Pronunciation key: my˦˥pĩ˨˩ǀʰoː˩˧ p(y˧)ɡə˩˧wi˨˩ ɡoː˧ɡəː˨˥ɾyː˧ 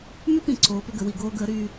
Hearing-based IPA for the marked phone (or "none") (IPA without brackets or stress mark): ʏ˧